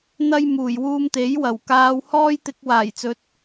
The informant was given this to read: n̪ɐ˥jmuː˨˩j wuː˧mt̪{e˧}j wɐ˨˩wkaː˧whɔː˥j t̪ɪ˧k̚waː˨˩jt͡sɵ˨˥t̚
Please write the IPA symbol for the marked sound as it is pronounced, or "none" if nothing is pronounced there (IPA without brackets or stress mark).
e˨˥